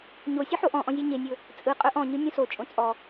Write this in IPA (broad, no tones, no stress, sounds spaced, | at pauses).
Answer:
ɲ o sʲ ɵ ħ o ʔ ɔ̃ ʔ ɔ̃ zʲ e ɲ e nʲ ɵ | t͡sʼ ɯ qʼ ɵ ʔ ɔ̃ ɲ ɯ nʲ õ s o t͡ʃʼ õ t͡sʼ ɔ